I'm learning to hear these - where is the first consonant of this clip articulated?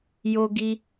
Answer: palate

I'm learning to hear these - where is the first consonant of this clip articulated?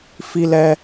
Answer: lips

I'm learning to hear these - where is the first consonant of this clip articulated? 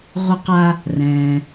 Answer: uvula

